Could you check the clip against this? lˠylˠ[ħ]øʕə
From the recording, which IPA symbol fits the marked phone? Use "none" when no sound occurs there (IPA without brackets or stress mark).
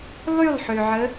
ħ